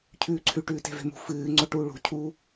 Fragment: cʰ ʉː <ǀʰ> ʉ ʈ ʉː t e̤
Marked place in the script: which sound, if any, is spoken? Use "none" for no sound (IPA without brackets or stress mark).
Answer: ǀʰ